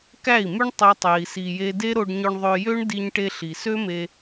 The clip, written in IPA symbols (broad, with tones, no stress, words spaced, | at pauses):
kæ˦˨i̯my˦ɳ tˤø˦tˤe˧i̯si˧je˦ de˦ɾo˧ɖɲø˧ɳ ðˤø˧jø˦ɳ di˧ɲʈe˧ ɬi˨sø˦me˧